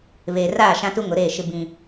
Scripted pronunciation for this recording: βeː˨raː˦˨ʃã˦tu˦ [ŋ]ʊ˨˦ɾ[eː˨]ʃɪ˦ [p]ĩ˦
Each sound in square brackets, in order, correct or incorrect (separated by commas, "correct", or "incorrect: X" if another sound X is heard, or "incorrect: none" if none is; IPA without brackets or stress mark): correct, incorrect: eː˦˨, incorrect: b